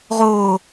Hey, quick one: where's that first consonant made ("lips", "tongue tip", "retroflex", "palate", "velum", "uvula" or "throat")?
uvula